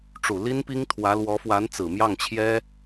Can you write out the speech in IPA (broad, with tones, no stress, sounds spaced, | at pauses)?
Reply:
ʈ͡ʂ u˨˩ l i˥ n p i˥ ŋ t̪ʰ w ä˧˥ l w ɔ˧˥ f w a˧˥ n t͡s ɹ̩˨˩ m j ɑ˥˩ ŋ t͡ɕʰ j ɛ˥